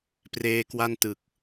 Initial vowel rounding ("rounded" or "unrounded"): unrounded